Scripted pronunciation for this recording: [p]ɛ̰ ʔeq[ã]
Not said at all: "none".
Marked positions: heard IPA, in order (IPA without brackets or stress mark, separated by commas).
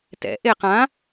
t, ã